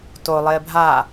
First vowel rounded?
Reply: yes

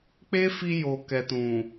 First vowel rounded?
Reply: no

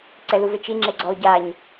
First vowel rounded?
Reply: no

